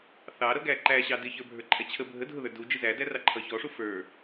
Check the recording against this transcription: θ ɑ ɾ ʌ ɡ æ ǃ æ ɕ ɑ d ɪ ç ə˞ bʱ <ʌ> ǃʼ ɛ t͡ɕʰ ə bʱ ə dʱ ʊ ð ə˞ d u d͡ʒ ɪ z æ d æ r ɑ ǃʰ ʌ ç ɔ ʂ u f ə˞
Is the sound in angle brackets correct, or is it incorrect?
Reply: incorrect